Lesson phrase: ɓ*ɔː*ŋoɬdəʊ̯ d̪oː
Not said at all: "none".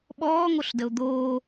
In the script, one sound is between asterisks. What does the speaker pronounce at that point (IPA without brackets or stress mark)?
ɔː